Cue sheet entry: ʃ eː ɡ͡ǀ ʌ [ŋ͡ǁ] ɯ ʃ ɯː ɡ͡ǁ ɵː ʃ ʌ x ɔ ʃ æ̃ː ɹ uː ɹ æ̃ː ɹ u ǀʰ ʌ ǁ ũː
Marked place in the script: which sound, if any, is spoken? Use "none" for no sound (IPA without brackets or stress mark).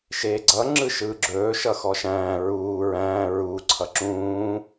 ŋ͡ǁ